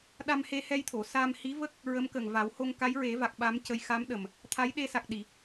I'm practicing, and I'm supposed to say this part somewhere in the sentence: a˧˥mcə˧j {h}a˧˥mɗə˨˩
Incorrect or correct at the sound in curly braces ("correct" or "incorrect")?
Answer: incorrect